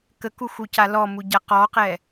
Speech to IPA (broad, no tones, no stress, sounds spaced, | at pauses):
k ə k u x u c a l ɔ m u ɟ a q ɔ q ɛ